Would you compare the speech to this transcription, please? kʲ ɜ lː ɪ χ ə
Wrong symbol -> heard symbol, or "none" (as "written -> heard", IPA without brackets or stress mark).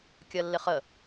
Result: none